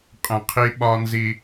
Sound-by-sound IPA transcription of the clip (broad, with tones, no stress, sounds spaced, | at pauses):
qʼ ə̃˨ qʰ i˦ ɓ ɒ˦ n z i˦